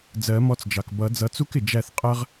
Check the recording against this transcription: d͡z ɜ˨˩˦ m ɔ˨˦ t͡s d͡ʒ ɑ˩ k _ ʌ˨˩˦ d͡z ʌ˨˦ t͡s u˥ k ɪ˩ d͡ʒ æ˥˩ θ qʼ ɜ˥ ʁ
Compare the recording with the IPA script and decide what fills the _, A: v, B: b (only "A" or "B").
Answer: B